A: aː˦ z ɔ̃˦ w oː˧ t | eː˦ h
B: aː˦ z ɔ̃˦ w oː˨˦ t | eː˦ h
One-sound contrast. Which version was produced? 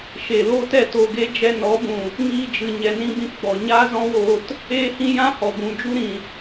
A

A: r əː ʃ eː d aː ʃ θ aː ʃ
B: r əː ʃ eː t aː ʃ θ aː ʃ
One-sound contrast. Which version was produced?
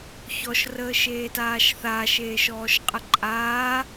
B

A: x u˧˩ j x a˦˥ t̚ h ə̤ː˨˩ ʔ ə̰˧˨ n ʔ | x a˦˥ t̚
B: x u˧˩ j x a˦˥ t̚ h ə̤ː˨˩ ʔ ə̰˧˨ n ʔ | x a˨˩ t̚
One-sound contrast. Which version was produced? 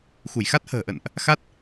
A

